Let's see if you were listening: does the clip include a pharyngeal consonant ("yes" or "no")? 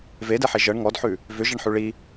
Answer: yes